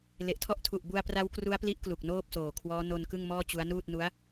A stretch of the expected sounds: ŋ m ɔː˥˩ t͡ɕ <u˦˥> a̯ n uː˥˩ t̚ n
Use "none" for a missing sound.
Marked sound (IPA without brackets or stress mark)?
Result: u˦˥